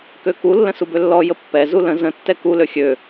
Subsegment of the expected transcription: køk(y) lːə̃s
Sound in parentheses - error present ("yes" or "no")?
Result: yes